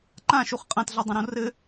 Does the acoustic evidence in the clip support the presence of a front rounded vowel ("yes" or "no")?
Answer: no